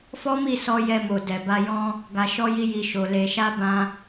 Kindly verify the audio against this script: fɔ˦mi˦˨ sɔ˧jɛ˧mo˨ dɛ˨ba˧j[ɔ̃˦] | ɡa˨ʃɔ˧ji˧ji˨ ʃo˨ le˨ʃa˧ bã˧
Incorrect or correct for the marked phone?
correct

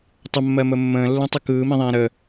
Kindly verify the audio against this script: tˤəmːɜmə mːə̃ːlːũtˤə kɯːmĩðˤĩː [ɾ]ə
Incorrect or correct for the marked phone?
correct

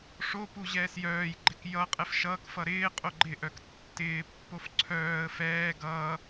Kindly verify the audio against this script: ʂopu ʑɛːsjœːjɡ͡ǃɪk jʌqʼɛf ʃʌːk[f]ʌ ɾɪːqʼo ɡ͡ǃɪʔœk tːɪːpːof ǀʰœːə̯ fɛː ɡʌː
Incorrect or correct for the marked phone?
correct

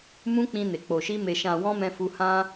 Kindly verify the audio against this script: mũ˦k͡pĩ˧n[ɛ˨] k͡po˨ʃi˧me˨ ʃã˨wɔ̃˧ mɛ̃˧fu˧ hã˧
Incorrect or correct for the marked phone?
incorrect: e˨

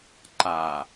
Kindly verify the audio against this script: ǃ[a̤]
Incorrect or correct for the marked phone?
incorrect: a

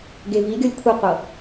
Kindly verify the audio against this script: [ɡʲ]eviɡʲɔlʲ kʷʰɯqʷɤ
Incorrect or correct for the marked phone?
incorrect: ɡ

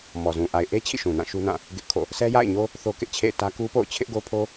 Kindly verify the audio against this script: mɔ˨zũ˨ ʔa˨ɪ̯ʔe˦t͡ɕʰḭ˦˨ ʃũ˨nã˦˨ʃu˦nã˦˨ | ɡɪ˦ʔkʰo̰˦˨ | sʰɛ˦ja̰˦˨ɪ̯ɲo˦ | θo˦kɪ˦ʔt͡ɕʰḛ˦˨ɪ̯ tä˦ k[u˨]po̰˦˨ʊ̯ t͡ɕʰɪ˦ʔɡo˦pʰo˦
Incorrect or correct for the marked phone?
incorrect: u˦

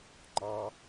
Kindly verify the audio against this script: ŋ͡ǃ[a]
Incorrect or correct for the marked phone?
incorrect: ɑ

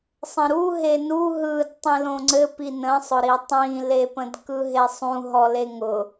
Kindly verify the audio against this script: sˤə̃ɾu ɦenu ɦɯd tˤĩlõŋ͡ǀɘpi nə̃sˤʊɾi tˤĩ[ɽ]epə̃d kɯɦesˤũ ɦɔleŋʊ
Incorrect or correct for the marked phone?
incorrect: l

